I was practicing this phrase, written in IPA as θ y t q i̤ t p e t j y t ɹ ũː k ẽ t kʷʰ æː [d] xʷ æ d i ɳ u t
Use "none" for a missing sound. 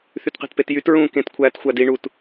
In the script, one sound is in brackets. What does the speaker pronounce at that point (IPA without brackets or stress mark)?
t